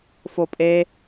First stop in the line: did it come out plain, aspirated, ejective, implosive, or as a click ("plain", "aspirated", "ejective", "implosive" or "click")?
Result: ejective